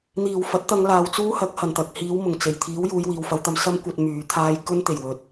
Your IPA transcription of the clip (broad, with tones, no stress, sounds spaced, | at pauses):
n̪ iː˨˩ w f ɐ˨˥ t̚ t̪ ɐ˧ ŋ l aː˨ w t͡s uː˥ h ɐ˨˥ k̚ h ɐ˨˩ n t̪ ɐ˨ k̚ h iː˨˧ w m ʊ˨˩ ŋ t͡s e˨˩ j t̪ʰ iː˨˥ w j uː˨˧ j w iː˨ w f ɐ˨˧ w t̪ ɐ˧ m s ɐ˥ m kʷ ɐ˧ t̚ m yː˨˥ t̪ʰ aː˥ j k ɵ˥ n t̪ e˨˩ j w ɵ˨ t̚